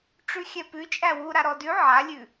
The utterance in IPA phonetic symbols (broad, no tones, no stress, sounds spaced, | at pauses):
ʈ͡ʂ ʉ xʲ ɛ p ʉ t͡ʃʼ æ w u ɾ a ɾ ɔ d ʉ ʕ a lʲ ʉ